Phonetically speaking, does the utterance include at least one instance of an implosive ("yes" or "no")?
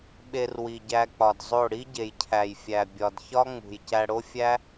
yes